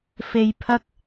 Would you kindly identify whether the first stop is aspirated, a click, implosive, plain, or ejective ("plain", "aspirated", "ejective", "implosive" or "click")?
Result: aspirated